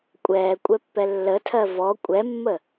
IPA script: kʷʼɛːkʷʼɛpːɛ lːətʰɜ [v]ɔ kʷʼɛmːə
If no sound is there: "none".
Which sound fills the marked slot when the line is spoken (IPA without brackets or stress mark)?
v